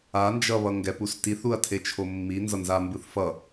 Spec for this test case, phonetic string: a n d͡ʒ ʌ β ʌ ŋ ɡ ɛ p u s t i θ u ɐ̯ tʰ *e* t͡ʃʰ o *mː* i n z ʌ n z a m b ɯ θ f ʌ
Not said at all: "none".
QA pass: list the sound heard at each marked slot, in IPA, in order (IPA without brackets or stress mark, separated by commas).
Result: e, mː